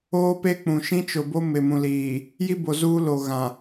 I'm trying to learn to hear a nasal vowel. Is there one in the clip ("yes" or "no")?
yes